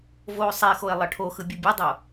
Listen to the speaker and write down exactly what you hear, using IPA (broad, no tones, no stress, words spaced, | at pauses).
voːsˤexoe̯ lˠʌʈʰoxɯ bʲɯbʲʌdˤo